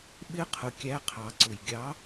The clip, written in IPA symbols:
ɓ ɪ˦˥ qʰ ʊ˩ kʲ æ˨˥ qʰ ɑ˩ ǀ ʊ˩ j ɡʲ ɑ˨˥

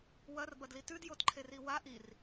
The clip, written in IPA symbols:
w ɐ r b ɐ d l i t ʉ d j o t ǃʰ e r i w a ʔ i r

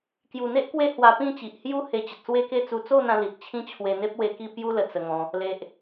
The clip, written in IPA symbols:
k j u˨˩ n̪ e˦ ʔ k w e˦ h w a˧ p ĩ˥˧ t͡ɕ i˨ ʔ h j u˥˧ h e˧ t͡ɕ ə˨ t̚ s w e˦ k e˥˧ t͡s u˧ t͡s o˥˧ n̪ ã˧ l i˨ t̚ t͡ɕʰ ĩ˦ t͡ɕʰ w e˧ n̪ e˦ p̚ w e˧ k i˥˧ p j u˦ l ə˨˩ t͡s ə˧ ŋ ɔ̃˧ | l e˨ ʔ

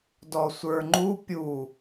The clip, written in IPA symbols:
d ɔ sʷ ə˞ ŋ͡ǃ u pʲ u

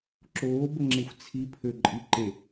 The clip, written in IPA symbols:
ǁ oː b ə ŋ͡ǁ e xʷ t͡sʰ i pʰ ø ǃʼ i ǃ e

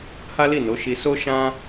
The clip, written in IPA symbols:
h a˦ l i˦˨ n o˨˦ ʃ i˧ s o˦ ʃ ã˦

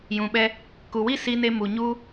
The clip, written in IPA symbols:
j ũ˨ ɓ ɛ˧ | k u˨ w i˦ s i˧ n e˧ m u˨ ɲ u˧

